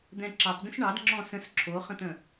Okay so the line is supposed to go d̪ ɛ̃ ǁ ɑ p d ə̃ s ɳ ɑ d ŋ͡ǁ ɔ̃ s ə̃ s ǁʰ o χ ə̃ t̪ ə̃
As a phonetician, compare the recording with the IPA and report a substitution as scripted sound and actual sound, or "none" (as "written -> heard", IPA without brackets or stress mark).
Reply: none